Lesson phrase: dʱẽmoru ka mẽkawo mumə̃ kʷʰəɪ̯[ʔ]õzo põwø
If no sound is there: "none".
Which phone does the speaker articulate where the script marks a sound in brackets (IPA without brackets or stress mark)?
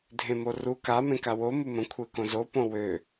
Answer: k